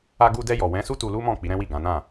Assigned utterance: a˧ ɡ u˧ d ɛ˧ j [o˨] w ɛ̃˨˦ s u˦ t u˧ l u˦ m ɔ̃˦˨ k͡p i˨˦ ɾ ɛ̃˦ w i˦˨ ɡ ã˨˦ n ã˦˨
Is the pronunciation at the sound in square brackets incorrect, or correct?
incorrect